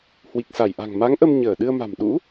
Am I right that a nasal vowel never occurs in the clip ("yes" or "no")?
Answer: yes